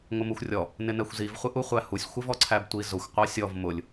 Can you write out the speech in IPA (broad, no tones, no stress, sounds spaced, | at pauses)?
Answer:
ŋʷ ɪ m u xʷ rʲ ɔ | n ɪ n ɛ xʷ z i v χʷ ɪ ʔ u χʷ æ h u sʲ xʷ ɪ v ɔ ǀʰ æ b tʷ i z ʊ xʷ qʷ ɑ sʲ ɔ v m ʊ lʲ